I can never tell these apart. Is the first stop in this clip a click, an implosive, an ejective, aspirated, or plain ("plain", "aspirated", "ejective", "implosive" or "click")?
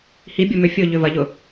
plain